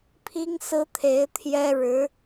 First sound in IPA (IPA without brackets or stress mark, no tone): pʰ